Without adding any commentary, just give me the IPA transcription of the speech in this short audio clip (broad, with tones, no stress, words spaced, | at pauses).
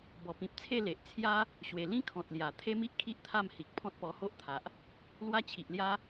bɔ˨˩pĩ˨p̚t͡sʰe˥˧ le˨ʔt͡sʰja˦ | ɕwe˨˩ lĩ˦kʰɔ̃˨t̚ lja˨˩ t̪ʰe˦mi˦ʔkʰi˦ʔ t̪ʰa˥˧mhi˨k̚ pʰɔ̃˦t̚pɔ˧ho˦ʔt̪ʰa˨ʔ | lwa˦t͡ɕʰi˨ʔlja˦